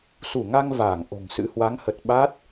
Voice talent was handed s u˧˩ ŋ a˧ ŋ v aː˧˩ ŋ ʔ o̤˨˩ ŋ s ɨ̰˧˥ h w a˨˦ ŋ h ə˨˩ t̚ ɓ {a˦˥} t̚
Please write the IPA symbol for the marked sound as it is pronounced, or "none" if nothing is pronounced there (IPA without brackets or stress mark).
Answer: a˦˥